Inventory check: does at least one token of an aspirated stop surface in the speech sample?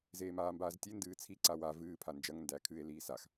yes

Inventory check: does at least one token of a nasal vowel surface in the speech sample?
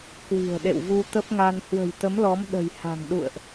no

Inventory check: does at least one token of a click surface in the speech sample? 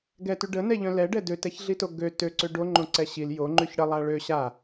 yes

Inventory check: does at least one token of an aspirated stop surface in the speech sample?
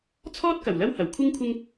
yes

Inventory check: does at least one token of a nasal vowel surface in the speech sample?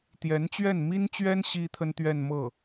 no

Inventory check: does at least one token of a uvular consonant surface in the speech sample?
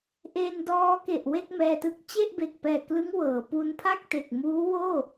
no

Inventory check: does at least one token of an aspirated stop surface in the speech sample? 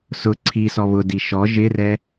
yes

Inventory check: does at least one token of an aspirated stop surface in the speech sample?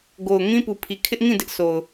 yes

